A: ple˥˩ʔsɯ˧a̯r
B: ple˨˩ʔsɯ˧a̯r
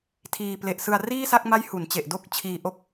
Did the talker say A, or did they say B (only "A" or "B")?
B